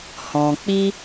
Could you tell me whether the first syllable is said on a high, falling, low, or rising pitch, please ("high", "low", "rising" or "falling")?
low